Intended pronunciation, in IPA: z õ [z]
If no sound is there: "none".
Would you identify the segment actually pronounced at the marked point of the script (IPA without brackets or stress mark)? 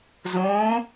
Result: none